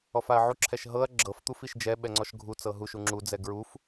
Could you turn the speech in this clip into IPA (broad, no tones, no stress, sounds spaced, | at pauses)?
ɔ f a ɐ̯ ʕ u ǁʰ ɛ ʃ ɦ ɤ ɐ̯ ɡ͡ǁ ɤ f t̪ u f i ʃ d͡ʒ ɛ ɓ ɛ ŋ͡ǀ ɔ ʃ ɡʱ u t͡s ɤ ɦ u ʃ u ŋ͡ǁ u d͡z ɛ ɡ ɹ u f